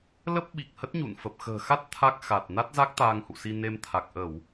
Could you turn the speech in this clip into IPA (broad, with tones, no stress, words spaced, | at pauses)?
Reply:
lə˦˥p̚ ɓi˨˩k̚hə˦˥t̚ ɲṵ˧˨nfə˨˩p̚ xə̤ː˨˩xa˦˥t̚ t̪ʰa˦˥k̚xa˨˩t̚ na˦˥t̚za˦˥k̚ t̪aː˧ŋhṵ˧˨si˧ ne˧mt̪ʰa˨˩k̚ ʔə˧˩˨w